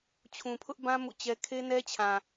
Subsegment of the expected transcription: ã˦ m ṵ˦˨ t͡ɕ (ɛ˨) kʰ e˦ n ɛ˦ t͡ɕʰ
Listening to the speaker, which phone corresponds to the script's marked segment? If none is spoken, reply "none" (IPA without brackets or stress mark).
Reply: ɛ˦